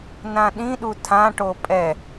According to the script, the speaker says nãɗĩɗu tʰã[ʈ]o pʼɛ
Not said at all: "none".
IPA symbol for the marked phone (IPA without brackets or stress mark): ʈ